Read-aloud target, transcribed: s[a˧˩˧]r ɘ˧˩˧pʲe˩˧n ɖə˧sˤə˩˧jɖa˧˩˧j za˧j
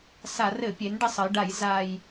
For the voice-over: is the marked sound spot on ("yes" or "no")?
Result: yes